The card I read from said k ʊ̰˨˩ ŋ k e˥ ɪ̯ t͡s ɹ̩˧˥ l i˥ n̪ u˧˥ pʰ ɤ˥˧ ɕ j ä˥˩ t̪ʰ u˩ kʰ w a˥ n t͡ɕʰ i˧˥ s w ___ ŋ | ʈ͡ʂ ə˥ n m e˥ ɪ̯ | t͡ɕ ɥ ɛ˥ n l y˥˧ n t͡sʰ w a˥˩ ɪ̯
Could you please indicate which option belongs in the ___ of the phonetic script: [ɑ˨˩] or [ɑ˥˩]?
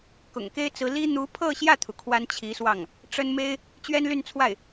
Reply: ɑ˥˩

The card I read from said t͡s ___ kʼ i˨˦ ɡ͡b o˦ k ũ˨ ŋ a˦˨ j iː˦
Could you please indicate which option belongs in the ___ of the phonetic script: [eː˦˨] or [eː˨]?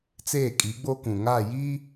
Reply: eː˦˨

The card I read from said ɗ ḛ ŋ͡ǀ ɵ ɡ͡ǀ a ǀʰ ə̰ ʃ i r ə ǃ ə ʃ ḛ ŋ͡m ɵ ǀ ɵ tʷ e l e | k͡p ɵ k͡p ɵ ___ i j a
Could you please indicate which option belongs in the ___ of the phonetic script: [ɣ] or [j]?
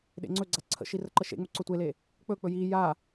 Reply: j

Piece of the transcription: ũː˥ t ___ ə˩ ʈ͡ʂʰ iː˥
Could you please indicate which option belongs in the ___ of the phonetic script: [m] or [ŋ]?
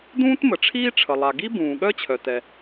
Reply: m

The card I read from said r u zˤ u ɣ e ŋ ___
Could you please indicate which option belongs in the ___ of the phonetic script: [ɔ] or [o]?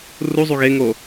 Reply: o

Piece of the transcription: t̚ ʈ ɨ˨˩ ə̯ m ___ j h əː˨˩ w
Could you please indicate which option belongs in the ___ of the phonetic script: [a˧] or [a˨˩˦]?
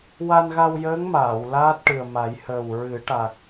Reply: a˨˩˦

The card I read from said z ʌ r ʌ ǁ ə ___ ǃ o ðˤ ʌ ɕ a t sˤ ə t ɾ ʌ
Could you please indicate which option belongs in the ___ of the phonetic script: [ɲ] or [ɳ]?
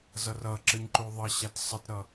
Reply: ɲ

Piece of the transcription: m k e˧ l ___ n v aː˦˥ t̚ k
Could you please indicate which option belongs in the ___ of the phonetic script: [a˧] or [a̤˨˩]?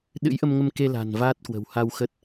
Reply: a̤˨˩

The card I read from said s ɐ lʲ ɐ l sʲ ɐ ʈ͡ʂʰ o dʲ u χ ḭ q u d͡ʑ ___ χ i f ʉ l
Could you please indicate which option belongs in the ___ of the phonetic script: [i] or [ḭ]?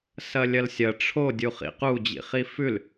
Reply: ḭ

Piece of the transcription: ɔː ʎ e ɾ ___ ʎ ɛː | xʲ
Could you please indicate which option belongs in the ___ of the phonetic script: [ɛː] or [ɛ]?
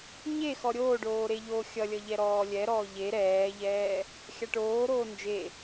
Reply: ɛː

